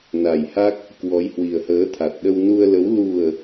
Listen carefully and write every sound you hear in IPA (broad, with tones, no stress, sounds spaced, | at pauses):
n a˨˩ j h a˦˥ k̚ | k w ɔ˨˦ j h w i˨˩ ə̯ h əː˨˦ t̪ʰ a˨˩ t̚ ɗ ə˧ w n u˧ ə̯ l ə˨˦ w l u˨˩ ə̯